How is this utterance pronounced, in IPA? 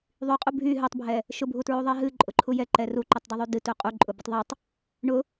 ðˤ y qʼ u bʱ y ɦ ɨ tˤ bʱ ɛ | ʃ ʊ bʱ u t ɹ u ðˤ ɛ ɦ ɨ ǃʼ ʊ ǃʰ u j ɛ ǃ ɛ r u ǃ ɨ tˤ d ʊ ðˤ y d ɨ t u qʼ u ǃʼ ʊ b ʊ tˤ ðˤ u tˤ | ɳ ʊ

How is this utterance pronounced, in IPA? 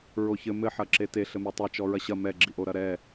ɹ o ç ɘ m ɘ ħ ɐ ǁ e t e ɬ ɘ m e tˤ e t͡ʃ ɔ ɹ ɐ ɕ ɐ m ɛ ɡ͡ǁ i ʔ o ɾ ɐ ɾ ɛ

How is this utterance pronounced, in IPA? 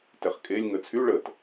t ɛ χ kʼ e lʲ ŋ ə t͡sʰ y ɭ ə t

